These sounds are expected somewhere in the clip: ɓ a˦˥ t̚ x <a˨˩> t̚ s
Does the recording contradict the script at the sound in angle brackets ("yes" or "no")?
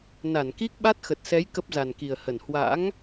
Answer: yes